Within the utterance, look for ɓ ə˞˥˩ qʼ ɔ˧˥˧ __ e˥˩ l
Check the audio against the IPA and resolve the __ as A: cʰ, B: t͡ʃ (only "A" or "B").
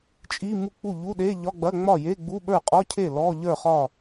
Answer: A